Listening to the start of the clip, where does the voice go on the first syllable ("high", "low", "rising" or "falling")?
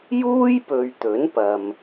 high